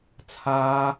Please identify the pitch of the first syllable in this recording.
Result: high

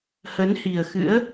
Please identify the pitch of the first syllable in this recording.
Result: rising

